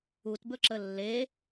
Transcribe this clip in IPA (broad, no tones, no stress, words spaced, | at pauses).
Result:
utbɵǁə lːe